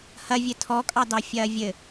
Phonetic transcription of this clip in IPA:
h ɐ vʲ ɘ tʰ ɔ kʼ ɑ d ɑ fʲ ɐː vʲ ɘ

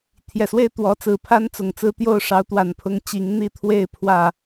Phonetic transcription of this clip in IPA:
t̪ʰ j ɛ˨˩ s w e˥˩ ɪ̯ t̪ w ɔ˧˥ t͡s ɹ̩˨˩ pʰ a˥ n t͡s ʊ˨˩ ŋ t͡s ɹ̩˥ t̪ j o˥˩ ʊ̯ ʂ ɑ˧˥ ʊ̯ t̪ w a˨˩ n pʰ ʊ˥ ŋ t͡ɕ i˧˥ ŋ n̪ i˥˧ t̪ʰ w e˥˧ ɪ̯ pʰ w ä˥˩

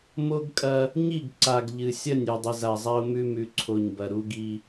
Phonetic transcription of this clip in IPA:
m o˦ ɡ kʼ ɐ˦ | ɲ i˦˨ ɡ ǀ a˨ ɡ ʎ ɨ˨ sʲ ɐ˦˨ nʲ ʉ˨ dˤ ɨ˨ z a˨ zˤ a˦ ʊ̯ m ʉ˦ m ʉ˨ ǀʰ o˨ ɲ b ɐ˨ ɾ u˦ ɡ i˦

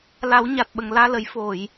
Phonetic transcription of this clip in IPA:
l a˨˩˦ w ɲ a˨˩ t̚ ɓ ə˨˩ ŋ l aː˧ l ə˨˩˦ j f o˨˩˨ j

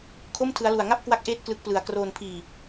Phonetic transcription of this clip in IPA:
kʰ o˥˩ m tʰ ɯ˦˥ a̯ l u˧ a̯ ŋ a˥˩ p̚ k w a˦˥ k̚ ʔ eː˦˥ t̚ k l ɯ˦˥ k̚ p l ɯ˧ a̯ k r oː˧ n pʰ iː˧

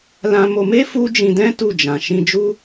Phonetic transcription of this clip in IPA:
l ã˧ m o˧ m e˦ f u˦ d͡ʒ ĩ˧ d ɛ̃˦ t u˦˨ d͡ʒ ã˨ ʃ ĩ˧ d͡ʒ u˦

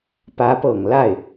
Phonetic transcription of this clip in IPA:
p ä˧˥ p ɤ˨˩ ŋ l a˥˩ ɪ̯

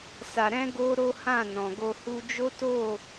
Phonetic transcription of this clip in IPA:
s a˧ ɾ ɛ̃˦ ɡ o˦ ɾ o˦ h ã˦˨ n ɔ̃˨ ɡ o˧ h u˧ d͡ʒ o˦ t o˦˨

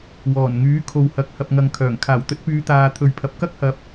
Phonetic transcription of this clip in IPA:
w ɔː˨˩ n ŋ yː˨˥ kʰ o˨ w h ɐ˨ k̚ h ɐ˨ p̚ ŋ ɐ˨ ŋ kʰ œː˨˩ ŋ kʰ aː˨˩ w t̪ ɵ˨˥ t̚ p yː˨˧ t̪ aː˨ t̪ʰ ɵ˨ ɥ pʰ ɐ˨ p̚ k ɐ˥ k̚ h ɐ˨˥ p̚

